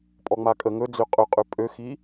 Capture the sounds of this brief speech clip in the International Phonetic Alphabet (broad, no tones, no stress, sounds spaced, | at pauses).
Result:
pʼ ɔ ŋ͡m a kʼ ə ŋ ɵ d͡z ø qʼ ɵ qʼ ø pʼ ø x i